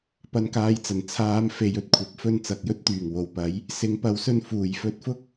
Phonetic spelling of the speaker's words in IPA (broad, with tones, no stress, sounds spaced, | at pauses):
p ɐ˧ n k aː˧ j t͡s ɐ˨˩ n t͡sʰ aː˨˧ m f e˨˧ j ɵ˧ t̚ kʷʰ ɐ˨˥ p̚ f ɵ˧ n t͡s ɐ˨ k̚ j ɵ˥ t̚ t̪ yː˨˩ ŋ w o˨˩ w p ɐ˨˥ j | s ɪ˨˥ ŋ p ɐ˨˥ w s ɵ˧ n f uː˨˩ j f ɵ˧ t̚ f ʊ˥ k̚